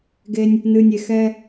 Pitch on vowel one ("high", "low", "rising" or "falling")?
high